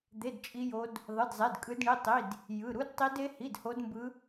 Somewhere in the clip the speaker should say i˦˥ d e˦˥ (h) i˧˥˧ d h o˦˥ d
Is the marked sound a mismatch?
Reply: no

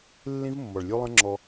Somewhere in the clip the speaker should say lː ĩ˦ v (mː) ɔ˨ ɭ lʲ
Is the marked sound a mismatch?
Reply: no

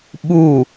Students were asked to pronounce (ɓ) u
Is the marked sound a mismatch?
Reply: no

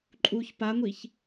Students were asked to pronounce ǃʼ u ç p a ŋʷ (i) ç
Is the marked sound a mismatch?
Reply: no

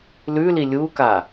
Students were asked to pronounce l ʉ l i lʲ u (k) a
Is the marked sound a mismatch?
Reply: no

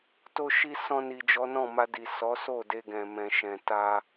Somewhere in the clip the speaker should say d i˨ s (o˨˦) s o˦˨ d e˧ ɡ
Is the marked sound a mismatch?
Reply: yes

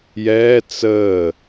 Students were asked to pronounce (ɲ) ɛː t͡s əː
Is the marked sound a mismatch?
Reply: yes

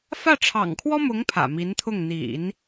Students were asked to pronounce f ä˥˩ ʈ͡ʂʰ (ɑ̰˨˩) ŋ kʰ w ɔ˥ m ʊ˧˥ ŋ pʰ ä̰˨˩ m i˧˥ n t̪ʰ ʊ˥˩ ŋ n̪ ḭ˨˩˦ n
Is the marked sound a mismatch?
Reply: no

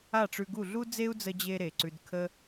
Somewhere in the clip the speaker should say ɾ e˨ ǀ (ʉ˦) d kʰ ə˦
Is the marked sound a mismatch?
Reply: yes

